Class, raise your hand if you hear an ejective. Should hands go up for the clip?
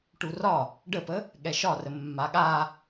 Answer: no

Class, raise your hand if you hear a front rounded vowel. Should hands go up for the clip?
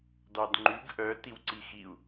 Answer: yes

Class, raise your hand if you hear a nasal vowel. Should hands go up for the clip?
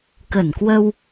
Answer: no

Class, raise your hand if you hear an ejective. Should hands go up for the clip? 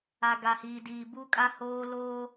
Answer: yes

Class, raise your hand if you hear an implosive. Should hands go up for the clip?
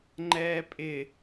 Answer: no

